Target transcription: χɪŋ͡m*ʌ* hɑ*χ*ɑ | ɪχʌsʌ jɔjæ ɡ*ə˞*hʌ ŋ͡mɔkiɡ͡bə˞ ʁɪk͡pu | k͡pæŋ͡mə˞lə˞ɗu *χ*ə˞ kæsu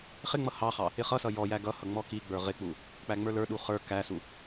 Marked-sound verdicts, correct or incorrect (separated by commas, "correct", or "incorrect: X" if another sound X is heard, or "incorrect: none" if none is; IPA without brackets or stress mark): correct, correct, incorrect: ʌ, correct